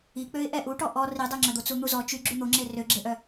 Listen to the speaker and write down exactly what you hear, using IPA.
i k͡p ø ɪ̯ ʔ ɛ ʔ u ʈ ɔ ʔ ɔ r i dˤ ø ŋ͡ǁ œ d̪ o t͡s u n̪ u z ɔ t͡ʃ y ɡ͡ǁ y n̪ o ŋ͡ǁ e r ø ɡ͡ǁ e ʔ œ

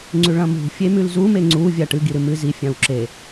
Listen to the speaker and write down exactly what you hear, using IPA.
ŋ͡ǀ ʉ ɭ ɐ̃ m ṳ fʲ e m ʉ l z u m e ŋ͡ǀ u vʲ a ʈ ɨ ɡ i ɾ ɨ m ɨ z i fʲ ã w ǁ e

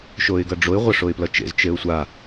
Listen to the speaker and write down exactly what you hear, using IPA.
ʃ o ɪ̯ ɡ ʌ ɖ͡ʐ o ɪ̯ ʁʷ ʌ ʂ o ɪ̯ p l ʌ t͡ʃ ḛ z t͡ʃ e ʊ̯ sʷ a

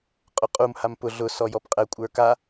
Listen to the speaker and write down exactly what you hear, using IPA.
qʼ ʊ qʼ u m h a m p ʊ ɮ ʊ s ɔ j ɔ p qʼ ɛ kʷʼ ə˞ k a

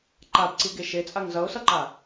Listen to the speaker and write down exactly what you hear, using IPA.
ǃ a b ǀ i ɡ e ʃ e t͡sʼ a ŋ z ʌ ʊ̯ s ʌ ǃ a

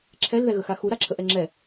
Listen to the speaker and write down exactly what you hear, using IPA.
ǁʰ ɛ l ð ɛ ɣ ə x a x u ɾ a ǁʰ ə ʔ ɛ ŋ͡ǁ ɛ

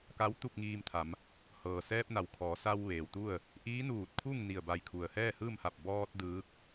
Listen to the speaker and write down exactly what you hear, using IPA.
k a˧˥ w t̪ u˥˨ p̚ ŋ iː˧ m t̪ʰ a˩˧ m | h ɤː˩ s ɛː˧ p̚ n a˩ w kʰ ɔː˩˧ s a˧ w ʋ eː˩ w t̪ u˥˨ ə̯ | ʔ iː˧˥ n uː˧˩ t̚ kʰ u˥˨ ŋ n i˧˩ ə̯ b a˧˩ j kʰ u˩ ə̯ h ɛː˥˨ h ɯː˥˨ m h a˧˩ p̚ b ɔː˧ t̚ d ɯː˧˥ k̚

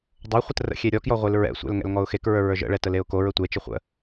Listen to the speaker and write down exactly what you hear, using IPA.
dˤ o χʷ ə t r ə̰ xʲ e ɾʲ ɔ k j ɔ ʁʷ e l ɹ ɛ̰ sʷ ɛ̰ l ŋ ɛ̰ l ŋ ɔ ʊ̯ x e k ɹ ə˞ ɹ ə˞ ʒ ə̰ ɭ ɛ t ə l e ʊ̯ k o ɹ ə tʷ e t͡ʃ e χʷ ə̰

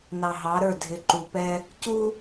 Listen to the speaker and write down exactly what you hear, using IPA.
n ɑ˨ ɦ ɑ˨˦ ɾ ə˞˦˨ dʱ ɪ˨ ǃ u˨ p ɛ˦ | c u˦

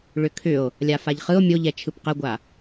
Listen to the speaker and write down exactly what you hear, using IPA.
ɭ ʏ kʰ ʏ o̯ | lʲ a f a ʎ χ ɯ o̯ mʲ o ʎ ɛ t͡ʃʰ ɯ p q ə ɡʷ a

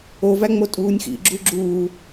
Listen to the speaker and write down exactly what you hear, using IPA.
o v æ ŋ͡m o tʼ uː nʲ x ḭ ɡ͡ǁ u ɡ͡ǁ uː

